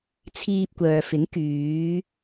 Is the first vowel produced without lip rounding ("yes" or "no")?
yes